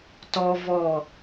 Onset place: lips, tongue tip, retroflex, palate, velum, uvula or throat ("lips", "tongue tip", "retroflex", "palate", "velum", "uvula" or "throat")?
tongue tip